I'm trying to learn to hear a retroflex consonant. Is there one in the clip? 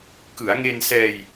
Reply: no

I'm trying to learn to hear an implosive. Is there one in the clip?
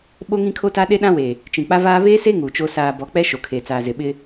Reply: yes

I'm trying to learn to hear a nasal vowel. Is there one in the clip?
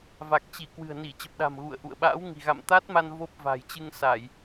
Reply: no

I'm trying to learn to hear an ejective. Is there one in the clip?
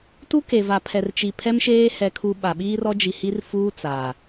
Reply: no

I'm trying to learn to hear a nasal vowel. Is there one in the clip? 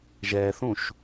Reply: yes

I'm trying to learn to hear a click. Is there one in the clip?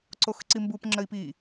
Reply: yes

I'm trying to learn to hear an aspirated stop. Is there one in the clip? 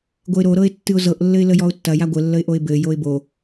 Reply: no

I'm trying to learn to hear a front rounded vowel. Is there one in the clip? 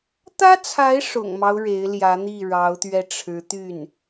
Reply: yes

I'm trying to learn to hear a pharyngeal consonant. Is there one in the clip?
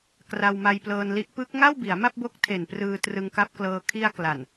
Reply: no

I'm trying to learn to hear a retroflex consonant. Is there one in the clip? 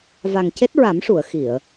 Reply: yes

